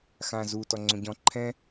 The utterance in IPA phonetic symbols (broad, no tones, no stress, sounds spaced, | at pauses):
x ã z u t ɔ ŋ͡ǀ õ ɟ ɔ̃ ǃʰ ɛ̃